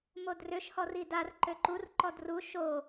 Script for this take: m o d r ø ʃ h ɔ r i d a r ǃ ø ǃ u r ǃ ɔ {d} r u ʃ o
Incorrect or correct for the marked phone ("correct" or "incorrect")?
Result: correct